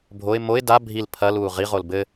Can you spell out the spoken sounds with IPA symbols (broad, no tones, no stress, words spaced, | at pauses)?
bʱoɪ̯ moɪ̯ da bʱil pʰɐluː ʁiʁol bɘ